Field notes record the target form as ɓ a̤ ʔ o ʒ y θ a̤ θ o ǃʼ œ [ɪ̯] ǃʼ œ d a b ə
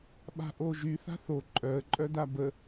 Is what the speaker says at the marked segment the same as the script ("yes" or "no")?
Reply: no